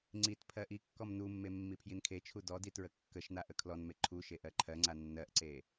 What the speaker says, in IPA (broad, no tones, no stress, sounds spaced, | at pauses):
ŋ͡ǀ i t pʰ ɜ ʔ i kː ɔ m n u mː e mː i pʰ j i n kʰ e t͡ʃʰ u d ɔ d i t ɹ ə kː ə ʃ n̪ a ʔ ə kʰ l ɔ n m e ǃʰ u ʃ e ʔ ɜ ǃʰ ɜ ŋ͡ǀ a nː ɜ ʔ ǀ e